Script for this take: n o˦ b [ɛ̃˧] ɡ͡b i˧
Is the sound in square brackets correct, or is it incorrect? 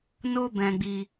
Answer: correct